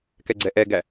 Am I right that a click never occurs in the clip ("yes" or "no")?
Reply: no